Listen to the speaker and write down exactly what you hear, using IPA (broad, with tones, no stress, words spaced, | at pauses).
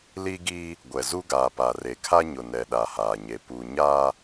li˦ɡiː˦ | ɡʷɛ˨zu˦ ɡaː˨pa˨re˨kʰa˦ ɲʊ˨nɛ˨ ɗa˨haː˨ɲe˨ pu˨ɲaː˦